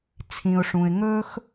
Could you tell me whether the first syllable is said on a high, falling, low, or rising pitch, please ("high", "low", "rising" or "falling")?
low